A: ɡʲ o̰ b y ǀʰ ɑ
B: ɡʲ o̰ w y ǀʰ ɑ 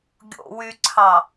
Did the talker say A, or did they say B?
B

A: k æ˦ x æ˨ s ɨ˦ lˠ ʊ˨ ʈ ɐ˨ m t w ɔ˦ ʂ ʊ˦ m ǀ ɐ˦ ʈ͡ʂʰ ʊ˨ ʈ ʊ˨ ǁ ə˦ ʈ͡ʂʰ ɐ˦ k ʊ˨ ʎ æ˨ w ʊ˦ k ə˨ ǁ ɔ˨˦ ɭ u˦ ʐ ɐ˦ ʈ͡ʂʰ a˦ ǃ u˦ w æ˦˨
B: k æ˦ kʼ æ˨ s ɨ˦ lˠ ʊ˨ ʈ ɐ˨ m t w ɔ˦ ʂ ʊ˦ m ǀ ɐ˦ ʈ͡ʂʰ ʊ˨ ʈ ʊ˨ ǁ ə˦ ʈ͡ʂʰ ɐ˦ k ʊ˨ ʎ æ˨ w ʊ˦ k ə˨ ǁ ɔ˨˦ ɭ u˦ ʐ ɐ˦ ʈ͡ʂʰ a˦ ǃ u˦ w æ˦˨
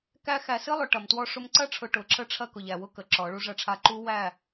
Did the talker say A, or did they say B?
A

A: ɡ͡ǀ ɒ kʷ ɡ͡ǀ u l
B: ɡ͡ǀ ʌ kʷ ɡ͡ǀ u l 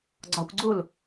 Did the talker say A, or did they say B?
A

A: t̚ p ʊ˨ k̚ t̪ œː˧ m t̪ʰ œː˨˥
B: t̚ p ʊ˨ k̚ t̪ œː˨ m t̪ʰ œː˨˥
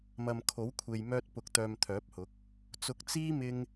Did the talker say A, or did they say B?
B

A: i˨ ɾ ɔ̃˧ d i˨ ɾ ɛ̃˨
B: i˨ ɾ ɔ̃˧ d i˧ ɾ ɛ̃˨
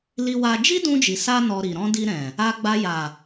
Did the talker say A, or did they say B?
B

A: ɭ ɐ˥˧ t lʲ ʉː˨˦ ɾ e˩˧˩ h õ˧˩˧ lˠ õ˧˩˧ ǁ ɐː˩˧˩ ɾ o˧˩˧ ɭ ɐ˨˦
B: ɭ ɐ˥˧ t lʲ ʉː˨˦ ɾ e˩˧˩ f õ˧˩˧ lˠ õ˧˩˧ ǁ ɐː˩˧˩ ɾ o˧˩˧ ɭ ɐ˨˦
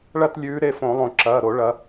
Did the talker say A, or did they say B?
B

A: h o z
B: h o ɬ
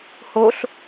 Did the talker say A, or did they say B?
B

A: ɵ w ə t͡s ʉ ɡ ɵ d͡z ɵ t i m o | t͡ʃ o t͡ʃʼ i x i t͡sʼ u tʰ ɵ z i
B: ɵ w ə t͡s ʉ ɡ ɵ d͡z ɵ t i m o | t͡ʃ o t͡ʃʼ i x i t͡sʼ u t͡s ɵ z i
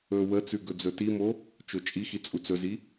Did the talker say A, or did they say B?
B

